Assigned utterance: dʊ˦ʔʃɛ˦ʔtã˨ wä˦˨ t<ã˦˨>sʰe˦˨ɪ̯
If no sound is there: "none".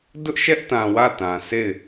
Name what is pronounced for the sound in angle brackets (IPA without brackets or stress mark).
ã˨